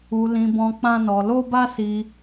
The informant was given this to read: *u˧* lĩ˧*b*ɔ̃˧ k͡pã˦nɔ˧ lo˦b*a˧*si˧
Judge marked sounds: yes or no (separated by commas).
yes, yes, no